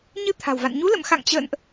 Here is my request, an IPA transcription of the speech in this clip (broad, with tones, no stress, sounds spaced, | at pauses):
ɲ ɨ˧ t̪ʰ a̤˨˩ w v a̰˧˨ n ɲ u˨˦ l ə̰˧˨ m x a̰˧˨ ŋ t͡ɕ ə̰ː˧˨ n ʔ